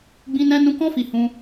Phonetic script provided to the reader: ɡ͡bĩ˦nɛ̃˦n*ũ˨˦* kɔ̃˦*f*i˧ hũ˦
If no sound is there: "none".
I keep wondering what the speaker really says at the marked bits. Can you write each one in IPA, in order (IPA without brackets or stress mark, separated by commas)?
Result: ũ˦, f